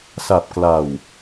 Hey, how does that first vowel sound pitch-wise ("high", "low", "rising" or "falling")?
low